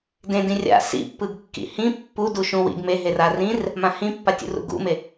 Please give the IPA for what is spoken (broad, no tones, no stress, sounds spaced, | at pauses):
d ẽ d ĩ rʲ a̰ s ḭ pː ɯ ɡ kː ḭ h ĩ pː u d u ʃ ũ w ḭ ɡ m e ɦ e r a r ĩ r | m ã h ĩ pː a tʲ ṵ r ṵ ɡ ṵ m e